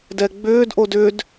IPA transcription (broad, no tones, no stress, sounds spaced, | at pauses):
d ɛ ɡ͡b ʏː d ʔ o d ʏ d